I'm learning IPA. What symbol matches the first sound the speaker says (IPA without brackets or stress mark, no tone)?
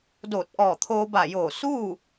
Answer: d